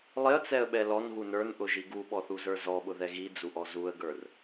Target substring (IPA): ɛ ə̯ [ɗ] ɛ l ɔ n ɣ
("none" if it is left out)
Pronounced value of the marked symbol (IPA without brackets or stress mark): ɓ